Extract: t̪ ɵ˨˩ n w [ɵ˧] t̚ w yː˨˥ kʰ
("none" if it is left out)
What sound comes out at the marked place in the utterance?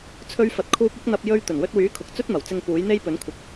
ɵ˧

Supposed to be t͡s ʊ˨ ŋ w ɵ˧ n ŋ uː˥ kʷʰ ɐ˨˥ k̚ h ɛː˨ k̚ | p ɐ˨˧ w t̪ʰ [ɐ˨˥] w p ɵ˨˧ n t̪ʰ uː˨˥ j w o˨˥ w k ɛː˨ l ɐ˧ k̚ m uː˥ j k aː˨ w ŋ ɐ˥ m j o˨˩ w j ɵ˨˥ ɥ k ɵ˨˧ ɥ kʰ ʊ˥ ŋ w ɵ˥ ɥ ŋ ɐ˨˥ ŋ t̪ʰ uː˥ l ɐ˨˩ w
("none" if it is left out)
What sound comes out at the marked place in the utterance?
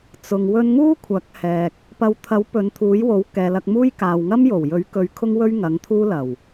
ɐ˨˥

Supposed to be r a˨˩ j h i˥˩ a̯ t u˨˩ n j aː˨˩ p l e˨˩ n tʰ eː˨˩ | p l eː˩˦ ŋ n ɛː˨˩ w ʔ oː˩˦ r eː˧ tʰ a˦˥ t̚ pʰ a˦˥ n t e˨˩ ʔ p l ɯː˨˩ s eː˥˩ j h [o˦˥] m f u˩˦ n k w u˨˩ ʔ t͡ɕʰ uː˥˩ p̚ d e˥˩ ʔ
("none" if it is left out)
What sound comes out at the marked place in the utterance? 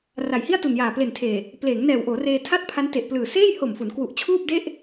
o˨˩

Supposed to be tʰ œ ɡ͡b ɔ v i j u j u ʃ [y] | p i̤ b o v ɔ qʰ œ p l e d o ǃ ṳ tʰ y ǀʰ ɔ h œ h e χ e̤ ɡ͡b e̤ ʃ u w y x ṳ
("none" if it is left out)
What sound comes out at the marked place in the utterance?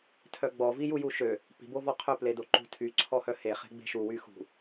ø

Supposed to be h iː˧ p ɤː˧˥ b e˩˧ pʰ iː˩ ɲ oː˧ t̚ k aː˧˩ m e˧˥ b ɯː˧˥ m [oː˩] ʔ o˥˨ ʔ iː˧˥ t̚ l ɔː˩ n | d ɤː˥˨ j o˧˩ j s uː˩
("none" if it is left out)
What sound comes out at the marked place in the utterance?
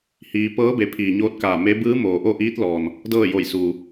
oː˩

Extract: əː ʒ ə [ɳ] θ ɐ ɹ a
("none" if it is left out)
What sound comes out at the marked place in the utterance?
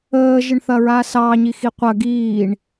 ɳ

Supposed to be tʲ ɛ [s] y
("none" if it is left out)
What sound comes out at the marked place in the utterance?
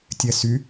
s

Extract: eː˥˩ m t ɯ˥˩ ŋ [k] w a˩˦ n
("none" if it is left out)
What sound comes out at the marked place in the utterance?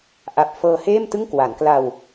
k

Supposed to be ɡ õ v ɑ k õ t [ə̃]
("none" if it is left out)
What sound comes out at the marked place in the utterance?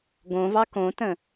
ə̃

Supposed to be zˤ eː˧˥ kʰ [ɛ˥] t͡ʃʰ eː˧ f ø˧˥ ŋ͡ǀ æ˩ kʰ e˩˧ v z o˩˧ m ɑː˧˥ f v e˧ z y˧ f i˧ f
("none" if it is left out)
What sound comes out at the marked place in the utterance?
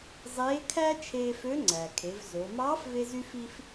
æ˥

